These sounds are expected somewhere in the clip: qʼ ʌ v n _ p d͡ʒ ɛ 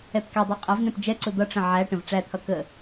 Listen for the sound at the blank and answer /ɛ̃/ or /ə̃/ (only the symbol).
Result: ɛ̃